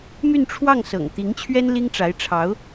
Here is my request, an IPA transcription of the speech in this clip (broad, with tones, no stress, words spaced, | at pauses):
my˥˧nʈ͡ʂʰwɑ˥˩ŋ sɤ̰˨˩ŋ t̪i˧˥ŋt͡ɕʰɥɛ˥n li˥ŋʈ͡ʂa˧˥ɪ̯ʈ͡ʂʰɑ˧˥ʊ̯